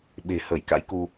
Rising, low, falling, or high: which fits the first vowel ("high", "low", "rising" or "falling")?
low